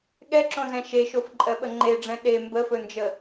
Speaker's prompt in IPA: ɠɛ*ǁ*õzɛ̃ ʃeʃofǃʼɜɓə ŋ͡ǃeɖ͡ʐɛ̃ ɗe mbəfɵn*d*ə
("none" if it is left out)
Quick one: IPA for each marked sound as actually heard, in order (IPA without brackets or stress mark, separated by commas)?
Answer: ǁ, d͡ʒ